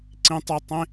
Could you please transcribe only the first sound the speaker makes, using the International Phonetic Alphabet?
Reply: ǀ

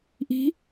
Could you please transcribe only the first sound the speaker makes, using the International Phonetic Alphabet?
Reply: ʔ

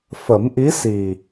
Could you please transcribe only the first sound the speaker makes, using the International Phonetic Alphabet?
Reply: f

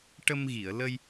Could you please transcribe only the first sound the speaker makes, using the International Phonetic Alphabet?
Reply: ʈ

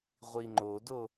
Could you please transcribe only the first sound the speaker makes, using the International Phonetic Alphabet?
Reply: ʁʷ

